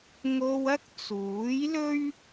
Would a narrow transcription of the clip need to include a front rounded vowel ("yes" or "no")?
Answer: no